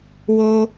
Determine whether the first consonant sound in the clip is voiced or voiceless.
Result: voiced